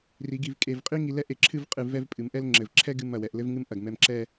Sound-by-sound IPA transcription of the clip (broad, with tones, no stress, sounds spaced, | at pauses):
r i˩˧ ɡ i˧˩ v kʼ e˧˩ v qʼ i˥ ŋ i˧ l ɛ˥ ʔ e˧˩ ǁʰ ɨ˥˧ v qʼ ɨ˧˩ v ɛ˥˧ v pʼ ɨ˩˧ m ʔ ɛ˥ l ŋ͡ǁ ɘ˧˩ v ǁʰ ɛ˥ ɡ ɨ˥˧ m ɐ˧˩ w ɛ˩˧ ʔ l ɘ˥ v ŋ ɨ˥ m ʔ ɐ˧˩ ɡ m ɛ˧ m ǁ ɛ˥˧